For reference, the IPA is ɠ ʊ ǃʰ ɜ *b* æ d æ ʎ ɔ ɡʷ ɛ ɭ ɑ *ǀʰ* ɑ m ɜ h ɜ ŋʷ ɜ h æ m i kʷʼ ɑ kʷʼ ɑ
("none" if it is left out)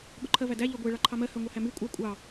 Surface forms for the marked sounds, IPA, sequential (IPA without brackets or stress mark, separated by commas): v, ǃʰ